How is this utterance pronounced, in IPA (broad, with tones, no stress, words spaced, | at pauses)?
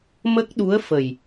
mə˦˥k̚ɗu˧˥ə̯fə˨˩j